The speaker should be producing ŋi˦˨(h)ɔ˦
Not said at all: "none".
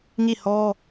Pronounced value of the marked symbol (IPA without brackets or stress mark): h